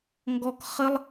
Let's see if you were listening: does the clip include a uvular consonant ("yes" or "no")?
yes